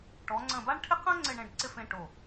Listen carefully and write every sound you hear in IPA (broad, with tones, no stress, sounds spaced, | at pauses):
ʈ ɔ˩˧ ŋ͡ǀ ə̃˧˩ b a˥ ɳ ʈʰ ɪ˥ q ɐ̃˥ ŋ͡ǀ ɪ˥˧ ɳ ẽ˥˧ ɖ ǀ ɪ˥˧ f ẽ˧ ʈ o˧˩